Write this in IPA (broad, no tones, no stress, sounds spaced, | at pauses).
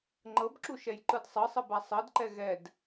ŋ͡ǃ ɤ b ǁ u ʃ ɛ j ǃ ɯ d sˤ ɤ sˤ ɤ b a sˤ ɤ d ǃ ɛ ɣ ɛ d